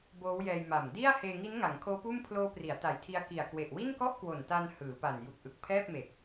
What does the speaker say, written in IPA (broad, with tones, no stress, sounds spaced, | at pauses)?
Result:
b oː˦˥ w j ɛː˧ j m a˨˩ m d i˥˩ a̯ h eː˧ ŋ i˦˥ n ŋ a˩˦ ŋ kʰ oː˦˥ p uː˥˩ m pʰ l oː˦˥ p r i˩˦ a̯ t a˨˩ j tʰ i˧ a̯ k i˨˩ a̯ k w e˨˩ ʔ w i˥˩ n k ɔ˥˩ ʔ k w o˨˩ n t a˧ n h ɯː˩˦ p a˨˩ n j u˨˩ k̚ ʔ ɯ˨˩ k̚ pʰ ɛː˥˩ p̚ m e˨˩ k̚